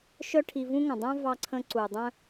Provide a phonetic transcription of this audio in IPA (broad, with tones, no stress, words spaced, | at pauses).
ʃœ˥ʈʰi˧vũ˥ŋə̃˩ dˤœ̃˥vɑ˧ǀʰə̃˧ ǀu˩dˤœ̃˥